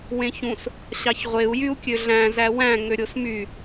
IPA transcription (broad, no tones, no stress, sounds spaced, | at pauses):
w ẽ ç ũ s | ɕ ɑ ç ʁʷ e u̯ j y u̯ kʲ ø ɮ æ̃ z æ w æ̃ ŋ ø ɾʲ o s m y